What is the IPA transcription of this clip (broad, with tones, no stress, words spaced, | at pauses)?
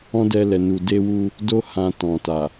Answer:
ɔ̃˦dɛ˧lɛ˨nu˨ de˧wu˧ | do˧hã˨ tɔ̃˨ ta˨